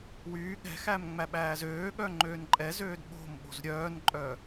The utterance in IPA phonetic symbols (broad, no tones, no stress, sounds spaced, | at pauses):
w yː ɠ ɛ̤ x æ m ŋ͡m æ ɓ æː z øː ɠ œ ŋ͡ǃ øː n ǃʼ ɛ z øː d ɓ o̤ m ɓ o̤ z ɾʲ œː n ǃʼ œ